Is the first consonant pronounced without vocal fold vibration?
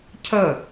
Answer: yes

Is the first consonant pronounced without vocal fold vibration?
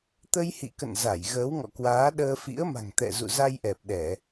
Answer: yes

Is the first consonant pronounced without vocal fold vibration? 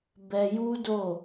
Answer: no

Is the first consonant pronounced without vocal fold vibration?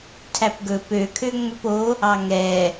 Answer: yes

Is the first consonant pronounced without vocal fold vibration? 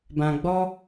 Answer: no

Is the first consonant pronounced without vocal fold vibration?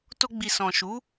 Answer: yes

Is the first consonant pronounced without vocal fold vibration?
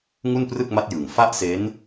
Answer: no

